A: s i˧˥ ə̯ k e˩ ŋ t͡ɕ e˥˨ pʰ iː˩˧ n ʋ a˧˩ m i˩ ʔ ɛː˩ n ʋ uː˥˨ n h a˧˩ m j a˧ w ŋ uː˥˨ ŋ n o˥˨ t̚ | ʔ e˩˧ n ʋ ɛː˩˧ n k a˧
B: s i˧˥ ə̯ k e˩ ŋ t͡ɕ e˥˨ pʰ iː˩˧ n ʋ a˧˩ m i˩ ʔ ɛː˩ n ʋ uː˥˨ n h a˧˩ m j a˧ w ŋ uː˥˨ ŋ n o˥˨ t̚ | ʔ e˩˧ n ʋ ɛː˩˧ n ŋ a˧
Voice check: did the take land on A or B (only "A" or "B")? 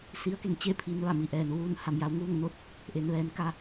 A